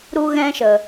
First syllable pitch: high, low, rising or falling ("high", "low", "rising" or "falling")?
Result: high